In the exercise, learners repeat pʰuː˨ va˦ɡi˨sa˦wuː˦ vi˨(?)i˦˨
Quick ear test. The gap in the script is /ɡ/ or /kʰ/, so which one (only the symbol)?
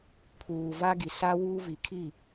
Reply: kʰ